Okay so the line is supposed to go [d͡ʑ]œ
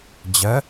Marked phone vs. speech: correct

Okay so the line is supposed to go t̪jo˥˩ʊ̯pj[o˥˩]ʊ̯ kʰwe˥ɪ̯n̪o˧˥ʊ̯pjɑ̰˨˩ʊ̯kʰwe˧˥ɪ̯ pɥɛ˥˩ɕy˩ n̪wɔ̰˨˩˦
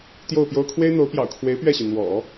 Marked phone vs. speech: incorrect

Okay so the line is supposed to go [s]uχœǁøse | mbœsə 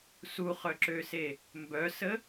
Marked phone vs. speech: correct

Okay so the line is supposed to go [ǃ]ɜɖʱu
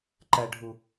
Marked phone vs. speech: correct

